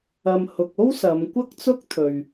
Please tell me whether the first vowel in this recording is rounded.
no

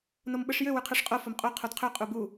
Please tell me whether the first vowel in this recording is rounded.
yes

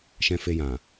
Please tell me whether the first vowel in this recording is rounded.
no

